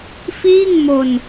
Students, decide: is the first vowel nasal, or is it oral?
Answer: oral